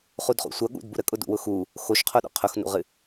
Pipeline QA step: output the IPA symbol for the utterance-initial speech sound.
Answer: χ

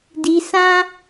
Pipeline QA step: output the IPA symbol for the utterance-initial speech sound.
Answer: d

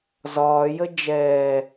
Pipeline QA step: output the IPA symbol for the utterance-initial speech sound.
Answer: z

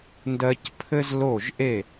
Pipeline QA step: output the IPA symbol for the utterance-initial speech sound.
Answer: n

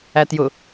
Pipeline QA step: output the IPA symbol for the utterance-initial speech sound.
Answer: æ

